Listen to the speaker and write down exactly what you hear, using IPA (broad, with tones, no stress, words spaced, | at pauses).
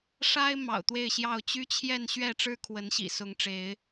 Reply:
ʂa˦ɪ̯ mɑ̰˨˩ʊ̯t̪we˥˨ɪ̯ɕjɑ˥˨ʊ̯ t͡ɕy˦t͡ɕʰjɛ˥˨n ɕɥɛ˥˨ʈ͡ʂɻ̩˦ kʰwə˨˦nɕḭ˨˩sʊ˨˦ŋ ʈ͡ʂe˨˦ɪ̯